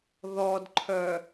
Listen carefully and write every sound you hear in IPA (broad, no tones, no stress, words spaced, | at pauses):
ðɔdǃʰœ